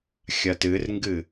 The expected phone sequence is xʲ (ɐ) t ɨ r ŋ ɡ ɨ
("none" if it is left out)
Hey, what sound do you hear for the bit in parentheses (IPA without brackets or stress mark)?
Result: ɐ